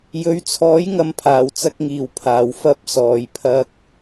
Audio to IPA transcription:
j ɵ˨˥ ɥ t͡sʰ ɔː˨˥ j ŋ ɐ˨ m pʰ aː˨˩ w t͡s ɐ˧ k̚ ŋ iː˨˩ w pʰ aː˨˩ w f ɐ˨˥ p̚ s ɔː˨˩ j pʰ ɐ˧ k̚

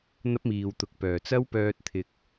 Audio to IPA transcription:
n̪ ɐ˥ p̚ m iː˨ w t̪ ʊ˨ k̚ p œː˨˩ t͡s ɐ˥ w p œː˧ t̚ t̪ʰ ɪ˨ k̚

